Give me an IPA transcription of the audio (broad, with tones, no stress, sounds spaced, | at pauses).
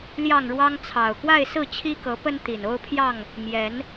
l j ɑ˥˨ ŋ ɻ w ɑ˦ ŋ t͡sʰ ɑ˨˩ ʊ̯ k w a˥˨ ɪ̯ s ɹ̩˥˨ t͡ɕʰ i˦ k ɤ˨˦ p ə˦ n t̪ i˨˩ n o˦ ʊ̯ pʰ j ɑ˥˨ ŋ | m j ɛ˨˦ n